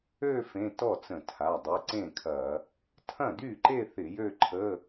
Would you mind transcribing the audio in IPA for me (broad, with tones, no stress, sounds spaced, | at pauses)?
ø˥˧ f ẽ˧˥˧ t ɔ˥˩ t͡s ə̃˧˩˧ tʰ a˩˧˩ dˤ y˩˧˩ ǀ ẽ˥˩ kʰ ɐ˧˩˧ | tʰ ɐ̃˥˩ d y˥˩ ǃ e˥˧ θ ɪ˧˩˧ j ø˥˧ ǃʰ ə˧˥˧